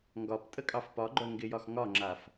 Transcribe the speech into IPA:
ŋɡɒp tʼəkʼɑfpɒɡ͡ǃœ ŋɡɪjɒx ŋɒŋ͡ǁaf

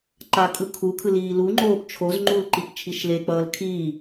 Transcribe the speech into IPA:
ǃakʼɯ kʰukʰɯ liːluŋ͡ǃoːp t͡ʃʰoz ŋ͡ǃulǃip t͡ʃʰiʃlek͡pʌːl kʰiː

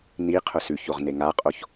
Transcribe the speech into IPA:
ni qʰʊsʉçoʁ neŋaqʼoç

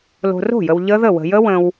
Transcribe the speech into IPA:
lo̤˨ro̤˥˩jə˨w ʎə˦˥ðə˥˩ wə̤˨jə˦˥ wə̃˨w

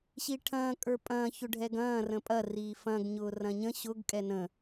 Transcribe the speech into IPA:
ɕiʈʰɐ̃ː kʼə˞pʼɐ̃ː çʊɖʱɛɡɐ̃ː rə̃pʼɐ riːfɐ̃ɡ ɲʊːrɐ̃ɲə̃ ɕʊɡ kʼɛnə̃

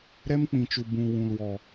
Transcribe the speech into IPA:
ɾɛ˦mk͡pĩ˨t͡ʃu˨ bũ˨ wũ˨lwɔ˨

